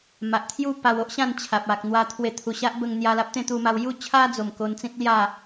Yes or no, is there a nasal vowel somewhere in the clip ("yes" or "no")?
yes